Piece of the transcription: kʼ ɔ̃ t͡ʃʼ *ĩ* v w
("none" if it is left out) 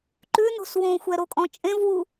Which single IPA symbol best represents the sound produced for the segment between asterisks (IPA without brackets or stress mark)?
ẽ